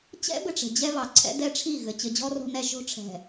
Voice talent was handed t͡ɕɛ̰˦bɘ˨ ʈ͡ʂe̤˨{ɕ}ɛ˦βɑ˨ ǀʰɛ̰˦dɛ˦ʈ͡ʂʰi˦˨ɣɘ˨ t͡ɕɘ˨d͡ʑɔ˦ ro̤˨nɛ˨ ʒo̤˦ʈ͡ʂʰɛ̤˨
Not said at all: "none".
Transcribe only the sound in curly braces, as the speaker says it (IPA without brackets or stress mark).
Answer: d͡ʑ